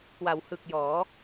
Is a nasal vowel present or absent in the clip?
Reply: absent